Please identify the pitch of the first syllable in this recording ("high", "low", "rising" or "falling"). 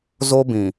high